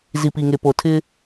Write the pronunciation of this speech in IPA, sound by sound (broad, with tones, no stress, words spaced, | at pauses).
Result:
zi˨pi˨ŋe˨po˨ tʰɪ˦